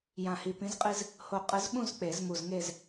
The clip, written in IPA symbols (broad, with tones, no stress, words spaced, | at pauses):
jã˨˩hi˨˩pĩ˨˥zqʼi˦z | ho˨˩qʼɨ˨˩˦zɓũ˦˨z k͡pe˨˩˦z mu˨˩zŋe˦˨z